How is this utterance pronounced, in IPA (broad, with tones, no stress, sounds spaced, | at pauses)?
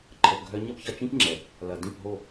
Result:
ǃʰ ə˨ p ɡʱ œ˧ ɲ ɐ˦ p ç ɐ˧ t͡ʃ ĩ˦ p ŋ͡ǁ ɛ˨ | l ɐ˨ d ĩ˦˨ p ɦ o˦˨